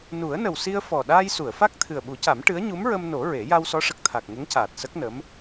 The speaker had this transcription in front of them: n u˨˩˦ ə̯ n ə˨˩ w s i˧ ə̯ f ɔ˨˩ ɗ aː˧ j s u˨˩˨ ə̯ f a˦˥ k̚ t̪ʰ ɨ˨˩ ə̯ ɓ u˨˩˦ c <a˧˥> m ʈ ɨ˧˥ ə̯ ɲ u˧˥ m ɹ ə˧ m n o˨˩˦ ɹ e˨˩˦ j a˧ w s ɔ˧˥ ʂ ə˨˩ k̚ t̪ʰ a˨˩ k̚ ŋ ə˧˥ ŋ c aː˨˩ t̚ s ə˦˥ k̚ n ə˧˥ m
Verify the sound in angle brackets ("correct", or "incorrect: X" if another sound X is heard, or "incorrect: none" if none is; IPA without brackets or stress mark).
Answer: incorrect: a˨˩˦